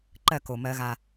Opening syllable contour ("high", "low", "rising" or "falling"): falling